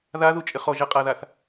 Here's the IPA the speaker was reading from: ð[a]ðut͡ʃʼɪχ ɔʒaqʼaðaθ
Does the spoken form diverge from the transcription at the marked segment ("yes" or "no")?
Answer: no